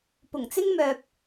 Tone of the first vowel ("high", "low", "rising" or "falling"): low